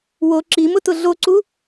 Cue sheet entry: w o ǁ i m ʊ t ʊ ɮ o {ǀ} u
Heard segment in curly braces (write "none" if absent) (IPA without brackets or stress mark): ǀ